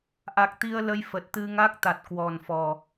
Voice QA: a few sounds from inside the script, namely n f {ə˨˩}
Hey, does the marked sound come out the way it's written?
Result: no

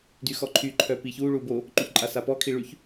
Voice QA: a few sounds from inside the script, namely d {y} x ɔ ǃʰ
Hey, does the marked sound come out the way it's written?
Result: yes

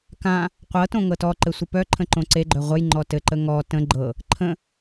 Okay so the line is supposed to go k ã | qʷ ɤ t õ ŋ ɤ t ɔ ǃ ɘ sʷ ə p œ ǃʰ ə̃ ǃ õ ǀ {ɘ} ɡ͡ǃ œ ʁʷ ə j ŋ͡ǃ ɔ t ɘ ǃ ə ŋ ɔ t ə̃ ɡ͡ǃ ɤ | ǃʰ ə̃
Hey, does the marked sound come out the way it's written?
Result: no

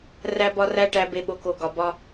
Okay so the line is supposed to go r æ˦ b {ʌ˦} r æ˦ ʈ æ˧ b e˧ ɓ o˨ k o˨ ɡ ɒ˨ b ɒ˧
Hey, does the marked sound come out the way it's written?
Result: no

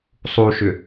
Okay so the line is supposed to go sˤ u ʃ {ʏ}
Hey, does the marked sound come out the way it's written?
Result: yes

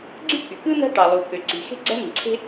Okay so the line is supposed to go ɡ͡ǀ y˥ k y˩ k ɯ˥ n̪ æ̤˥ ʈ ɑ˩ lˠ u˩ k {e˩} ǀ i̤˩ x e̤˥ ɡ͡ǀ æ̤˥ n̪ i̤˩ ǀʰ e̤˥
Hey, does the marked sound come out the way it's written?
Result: no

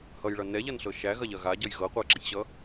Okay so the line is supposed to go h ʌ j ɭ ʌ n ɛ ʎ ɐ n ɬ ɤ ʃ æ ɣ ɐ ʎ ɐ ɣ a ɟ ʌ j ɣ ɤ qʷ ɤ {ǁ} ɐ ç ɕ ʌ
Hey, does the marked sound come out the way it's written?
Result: yes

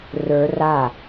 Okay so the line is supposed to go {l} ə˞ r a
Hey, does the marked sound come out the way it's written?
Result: no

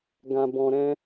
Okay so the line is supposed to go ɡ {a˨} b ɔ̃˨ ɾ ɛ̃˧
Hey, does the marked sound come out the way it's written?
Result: no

